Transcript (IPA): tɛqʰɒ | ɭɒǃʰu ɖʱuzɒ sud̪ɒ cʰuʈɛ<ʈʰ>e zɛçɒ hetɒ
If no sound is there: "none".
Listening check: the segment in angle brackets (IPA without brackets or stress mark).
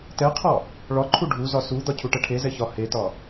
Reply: ʈʰ